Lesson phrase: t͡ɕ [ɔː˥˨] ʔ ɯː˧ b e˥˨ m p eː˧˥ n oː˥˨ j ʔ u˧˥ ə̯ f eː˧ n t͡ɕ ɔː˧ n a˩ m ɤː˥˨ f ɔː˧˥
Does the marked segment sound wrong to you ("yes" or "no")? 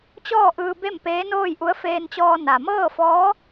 no